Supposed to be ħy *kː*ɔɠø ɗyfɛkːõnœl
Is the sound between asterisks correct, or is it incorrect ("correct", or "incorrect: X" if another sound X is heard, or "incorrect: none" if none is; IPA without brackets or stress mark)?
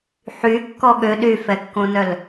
correct